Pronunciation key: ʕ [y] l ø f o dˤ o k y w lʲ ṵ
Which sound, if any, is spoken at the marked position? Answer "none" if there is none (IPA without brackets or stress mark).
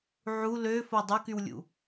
u